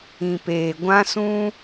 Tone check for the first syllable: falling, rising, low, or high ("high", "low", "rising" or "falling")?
low